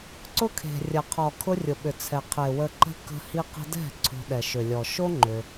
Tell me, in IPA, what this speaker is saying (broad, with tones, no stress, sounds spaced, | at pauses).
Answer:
ǀ ʊ˦ kʰ e̤˨ rʲ ɐ˨ qʰ ɔ˨ kʰ ʊ˦ rʲ ʊ˨ ɓ ʏ˨ t͡sʰ ɛ˨ qʰ e˨ w ə˧ ǃ ə̤˦ k ə̤˧ h i˧ q ə̤˧ d ɛ̤˦˨ ǀʰ o̤˧ ɗ ɛ˨ ʃ ʏ˨ lʲ ɔ˨ ʃ o˦ ŋ͡ǃ ʏ˧